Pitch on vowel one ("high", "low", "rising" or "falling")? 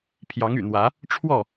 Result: rising